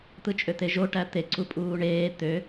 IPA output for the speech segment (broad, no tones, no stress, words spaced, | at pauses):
t̪ɯt͡ʃʼøt̪eʒo ʈæt̪e ǀupʼuːɳeː t̪ø